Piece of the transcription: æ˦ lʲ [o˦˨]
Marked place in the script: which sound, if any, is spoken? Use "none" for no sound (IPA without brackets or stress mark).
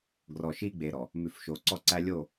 o˦˨